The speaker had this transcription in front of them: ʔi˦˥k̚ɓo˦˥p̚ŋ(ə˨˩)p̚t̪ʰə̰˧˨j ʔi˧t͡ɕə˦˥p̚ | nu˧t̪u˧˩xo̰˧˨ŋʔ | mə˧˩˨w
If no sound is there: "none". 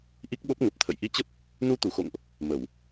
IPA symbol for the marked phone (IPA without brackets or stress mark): ə˨˩